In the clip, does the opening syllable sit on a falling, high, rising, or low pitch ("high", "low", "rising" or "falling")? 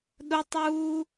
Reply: high